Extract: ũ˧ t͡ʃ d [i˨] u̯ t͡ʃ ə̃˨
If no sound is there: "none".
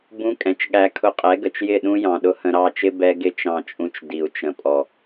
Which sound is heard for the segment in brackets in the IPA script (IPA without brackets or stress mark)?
i˨